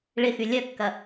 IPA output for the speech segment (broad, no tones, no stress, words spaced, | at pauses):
ɭɪxy lʲœkːɐ